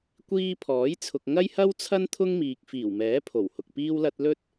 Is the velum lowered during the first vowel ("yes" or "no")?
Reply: no